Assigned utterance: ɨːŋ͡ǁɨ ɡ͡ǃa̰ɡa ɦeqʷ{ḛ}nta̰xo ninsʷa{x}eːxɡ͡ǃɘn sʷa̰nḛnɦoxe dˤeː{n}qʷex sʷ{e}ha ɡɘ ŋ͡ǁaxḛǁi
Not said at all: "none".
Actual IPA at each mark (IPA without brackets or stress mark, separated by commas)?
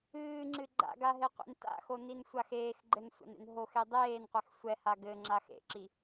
ḛ, x, n, ɛ